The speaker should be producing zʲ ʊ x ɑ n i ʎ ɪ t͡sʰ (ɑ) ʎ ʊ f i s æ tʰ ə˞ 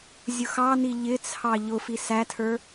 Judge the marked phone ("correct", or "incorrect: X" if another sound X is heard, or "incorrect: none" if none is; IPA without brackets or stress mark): correct